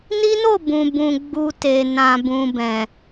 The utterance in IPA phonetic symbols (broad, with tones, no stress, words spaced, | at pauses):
ni˦no˦˨ bũ˨bũ˨ ɡ͡bu˨ te˨nã˨bũ˨bɛ̃˨